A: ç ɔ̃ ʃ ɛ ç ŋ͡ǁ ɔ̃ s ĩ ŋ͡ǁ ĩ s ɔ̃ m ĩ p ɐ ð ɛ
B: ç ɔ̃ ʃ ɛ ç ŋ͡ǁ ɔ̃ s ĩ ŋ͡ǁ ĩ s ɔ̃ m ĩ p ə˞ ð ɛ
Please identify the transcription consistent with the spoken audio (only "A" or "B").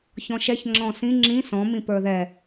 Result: B